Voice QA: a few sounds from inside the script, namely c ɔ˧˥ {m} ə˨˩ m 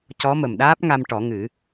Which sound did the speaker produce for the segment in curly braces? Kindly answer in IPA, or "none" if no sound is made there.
m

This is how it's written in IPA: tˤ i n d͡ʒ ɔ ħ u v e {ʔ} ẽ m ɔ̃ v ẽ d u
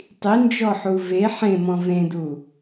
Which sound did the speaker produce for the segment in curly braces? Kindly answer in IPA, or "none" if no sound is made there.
ħ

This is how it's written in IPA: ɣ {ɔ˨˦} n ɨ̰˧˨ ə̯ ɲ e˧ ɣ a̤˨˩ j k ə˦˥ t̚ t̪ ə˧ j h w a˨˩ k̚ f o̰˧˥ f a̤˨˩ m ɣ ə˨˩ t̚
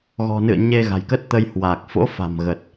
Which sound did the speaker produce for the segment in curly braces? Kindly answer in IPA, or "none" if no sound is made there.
ɔ̤˨˩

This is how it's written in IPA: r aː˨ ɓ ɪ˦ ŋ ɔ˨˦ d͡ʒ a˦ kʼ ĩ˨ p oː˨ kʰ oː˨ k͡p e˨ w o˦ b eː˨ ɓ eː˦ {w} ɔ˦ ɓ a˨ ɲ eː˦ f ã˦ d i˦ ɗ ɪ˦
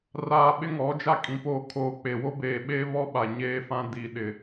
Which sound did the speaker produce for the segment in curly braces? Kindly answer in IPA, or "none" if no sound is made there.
β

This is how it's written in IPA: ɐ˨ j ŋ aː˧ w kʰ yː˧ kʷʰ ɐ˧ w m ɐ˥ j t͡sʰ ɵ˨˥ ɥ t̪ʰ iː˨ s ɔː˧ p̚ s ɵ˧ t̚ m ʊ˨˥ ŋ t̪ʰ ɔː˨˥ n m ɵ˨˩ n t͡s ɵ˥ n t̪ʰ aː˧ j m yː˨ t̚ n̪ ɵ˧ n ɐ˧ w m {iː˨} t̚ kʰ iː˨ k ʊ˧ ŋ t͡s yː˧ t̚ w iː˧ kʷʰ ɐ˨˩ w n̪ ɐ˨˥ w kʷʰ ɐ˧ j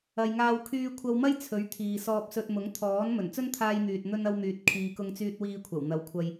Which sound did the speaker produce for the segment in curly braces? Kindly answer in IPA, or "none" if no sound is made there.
yː˨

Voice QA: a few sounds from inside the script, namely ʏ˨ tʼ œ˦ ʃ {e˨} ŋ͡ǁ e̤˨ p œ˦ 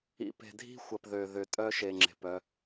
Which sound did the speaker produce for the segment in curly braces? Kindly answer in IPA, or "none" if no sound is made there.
e˨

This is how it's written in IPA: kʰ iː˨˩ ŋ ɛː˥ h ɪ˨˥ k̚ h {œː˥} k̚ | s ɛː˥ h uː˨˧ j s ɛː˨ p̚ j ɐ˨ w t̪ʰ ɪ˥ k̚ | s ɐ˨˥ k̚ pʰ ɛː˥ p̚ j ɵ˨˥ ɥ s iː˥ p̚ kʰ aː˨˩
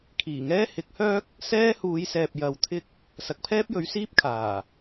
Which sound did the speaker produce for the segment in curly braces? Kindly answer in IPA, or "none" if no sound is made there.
œː˥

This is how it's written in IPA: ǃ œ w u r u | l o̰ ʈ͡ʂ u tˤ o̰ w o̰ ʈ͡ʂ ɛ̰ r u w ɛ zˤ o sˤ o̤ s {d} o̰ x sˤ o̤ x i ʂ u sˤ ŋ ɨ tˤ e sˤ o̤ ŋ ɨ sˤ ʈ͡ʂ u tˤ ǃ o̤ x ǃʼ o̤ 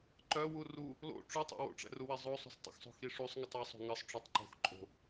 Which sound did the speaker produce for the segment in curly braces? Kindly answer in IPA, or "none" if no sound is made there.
tˤ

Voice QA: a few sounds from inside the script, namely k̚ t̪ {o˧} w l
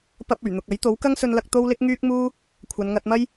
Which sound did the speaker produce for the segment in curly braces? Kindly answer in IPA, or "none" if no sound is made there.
o˥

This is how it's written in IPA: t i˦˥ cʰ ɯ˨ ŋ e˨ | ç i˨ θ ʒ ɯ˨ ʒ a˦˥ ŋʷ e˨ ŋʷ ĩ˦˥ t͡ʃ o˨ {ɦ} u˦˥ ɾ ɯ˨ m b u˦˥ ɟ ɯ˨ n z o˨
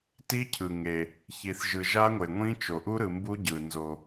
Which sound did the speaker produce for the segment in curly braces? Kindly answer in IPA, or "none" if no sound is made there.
ʔ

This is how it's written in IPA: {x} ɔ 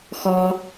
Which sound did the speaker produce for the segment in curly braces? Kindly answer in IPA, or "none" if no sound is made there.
x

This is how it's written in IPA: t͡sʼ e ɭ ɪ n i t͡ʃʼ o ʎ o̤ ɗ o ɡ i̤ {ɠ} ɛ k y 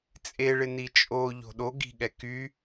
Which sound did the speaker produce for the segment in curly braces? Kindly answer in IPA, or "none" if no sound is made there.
ɠ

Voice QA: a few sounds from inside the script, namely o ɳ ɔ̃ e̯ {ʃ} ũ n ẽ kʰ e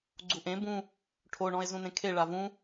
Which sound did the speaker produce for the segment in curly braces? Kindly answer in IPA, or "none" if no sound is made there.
z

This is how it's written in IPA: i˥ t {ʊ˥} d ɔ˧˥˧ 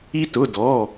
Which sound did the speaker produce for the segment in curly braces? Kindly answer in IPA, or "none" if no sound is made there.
ʊ˧˥˧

